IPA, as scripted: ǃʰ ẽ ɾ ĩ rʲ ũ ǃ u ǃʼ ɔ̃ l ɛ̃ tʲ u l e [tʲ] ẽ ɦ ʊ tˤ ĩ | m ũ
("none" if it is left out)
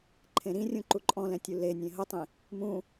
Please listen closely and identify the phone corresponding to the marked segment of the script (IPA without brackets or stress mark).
nʲ